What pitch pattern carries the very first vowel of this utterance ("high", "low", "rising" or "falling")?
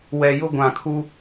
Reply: low